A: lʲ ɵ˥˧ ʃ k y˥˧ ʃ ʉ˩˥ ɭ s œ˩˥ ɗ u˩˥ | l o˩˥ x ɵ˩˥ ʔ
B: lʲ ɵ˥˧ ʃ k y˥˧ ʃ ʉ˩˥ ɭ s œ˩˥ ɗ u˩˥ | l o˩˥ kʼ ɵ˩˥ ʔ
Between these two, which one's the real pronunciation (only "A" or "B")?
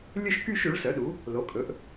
B